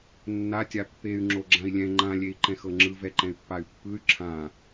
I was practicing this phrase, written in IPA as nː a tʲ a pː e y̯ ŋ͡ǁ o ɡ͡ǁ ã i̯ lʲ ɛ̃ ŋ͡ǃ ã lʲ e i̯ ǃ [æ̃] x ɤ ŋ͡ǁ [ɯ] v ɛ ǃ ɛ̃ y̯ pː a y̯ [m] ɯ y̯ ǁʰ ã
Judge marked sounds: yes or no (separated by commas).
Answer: no, yes, no